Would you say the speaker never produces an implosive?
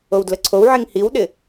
no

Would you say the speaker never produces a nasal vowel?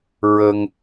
yes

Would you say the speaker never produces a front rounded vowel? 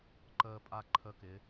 yes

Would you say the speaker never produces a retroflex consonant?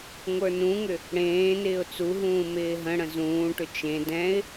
no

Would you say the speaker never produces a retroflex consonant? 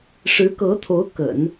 no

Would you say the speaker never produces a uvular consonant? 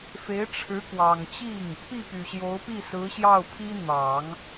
yes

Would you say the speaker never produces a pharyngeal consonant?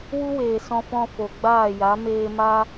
yes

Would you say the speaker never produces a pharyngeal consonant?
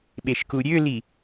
yes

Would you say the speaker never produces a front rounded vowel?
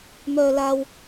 no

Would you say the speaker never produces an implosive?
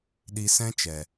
no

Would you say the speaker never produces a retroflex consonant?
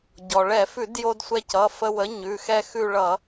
no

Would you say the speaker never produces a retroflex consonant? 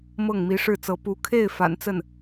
no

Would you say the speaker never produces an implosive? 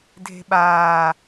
no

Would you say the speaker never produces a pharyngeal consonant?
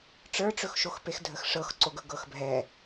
yes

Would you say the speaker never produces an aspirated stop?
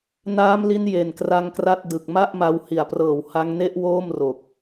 yes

